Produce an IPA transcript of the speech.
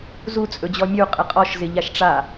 zu t͡sʼɵd͡ʑɔmʲu qʼɪqʼɔʃ zɪʎaʃʈ͡ʂa

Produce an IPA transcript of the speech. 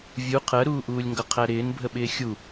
vʲu qʰɜɾuːʔuːlʲŋɡʌ qʰæɾɪːnbʱəɓɪː xʲu

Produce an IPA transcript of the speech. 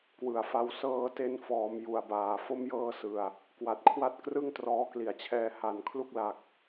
kwɯ˨˩a̯fa˦˥w sɤː˧te˧n fɔː˩˦m ju˨˩a̯baː˨˩ fo˦˥mjɤː˧sɯ˨˩a̯ | kwa˨˩t̚kʰwa˦˥t̚ krɯ˥˩ŋtrɔː˦˥kli˨˩a̯t͡ɕʰɛː˧ ha˨˩n kʰlu˦˥k̚la˨˩k̚

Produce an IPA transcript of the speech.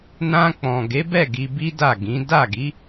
nã˧ k͡pɔ̃˨ ɡe˨˦bɛ˦˨ ɡi˧bi˦da˦˨ɡĩ˨˦ da˦˨ɡi˨˦

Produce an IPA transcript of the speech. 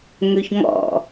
ŋøçŋɔ̰

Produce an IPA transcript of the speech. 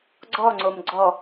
ɡ͡ǀɔŋ͡ǀom ɡ͡ǀɔ

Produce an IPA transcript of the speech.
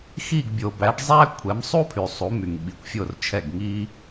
xi˦˨ɡ bʲo˨bæ˨˦ɖzˤæ˥ kʷʰɛ˨˦msˤu˥pʰy˨ sˤu˨˦my˨ŋ ɓi˨kʷfʲo˦˨rt͡ʃʰɛ˦˨ɡ ŋi˥

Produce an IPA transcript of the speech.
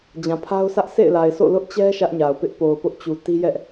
d͡ʑã˨pʰa˦ʊ̯sʰä˦ʔ sḛ˦˨ɪ̯la˨ɪ̯so̰˦˨ lʊ˦ʔt͡ɕɛ˦ ʃä˦ʔɲa˨ʊ̯pɪ˦ʔ po˨ʊ̯pʊ˦ʔt͡ɕu˨ ti˦jɛ˦ʔ

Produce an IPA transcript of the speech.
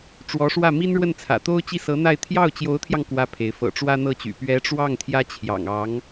ʈ͡ʂwɔ˧˥ʂwä˥˩ mi˥nɻwə˥˩nt͡sʰä̰˨˩t̪o˥ʊ̯ t͡ɕi˥˩sɤ˧˥n̪a˥˧ɪ̯ t̪ʰjɑ˥˩ʊ̯t͡ɕjo˧˥ʊ̯t̪ʰjɑ˧ŋ kwä˥pʰe˧˥ɪ̯ fɤ̰˨˩ʈ͡ʂwä˥n̪ɤ˥˩t͡ɕy̰˨˩ pɥɛ˧˥ʈ͡ʂwɑ˥˩ŋ t̪ʰjä˥t͡ɕʰjɑ̰˨˩ŋɑ˧˥ŋ

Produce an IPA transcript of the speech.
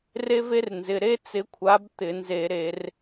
re˥ve˥rnzɪ˩˧˩ ɾe˥t͡sɪ˨˦kʷʰa˨˦b t̪ɪ˧˩˧nze˧˩˧ɾe˧˩˧r

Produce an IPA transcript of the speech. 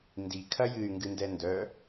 ndikʰɐ jɨy̯ŋɡɨndɛ ndœ

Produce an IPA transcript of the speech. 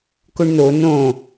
kʊɳno nõ

